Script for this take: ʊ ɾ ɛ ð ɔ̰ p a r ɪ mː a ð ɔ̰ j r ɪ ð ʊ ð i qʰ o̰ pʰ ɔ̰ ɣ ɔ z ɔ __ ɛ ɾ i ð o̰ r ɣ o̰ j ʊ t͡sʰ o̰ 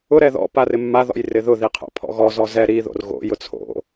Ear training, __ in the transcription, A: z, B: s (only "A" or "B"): A